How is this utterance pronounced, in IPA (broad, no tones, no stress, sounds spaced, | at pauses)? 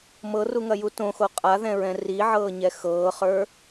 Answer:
m ɤ r u ŋ ɐ j u t õ x o qʼ a ð ɛ̃ ɹ ɛ̃ r i ʕ ɤː ɲ ɛ x ɤː χ ə˞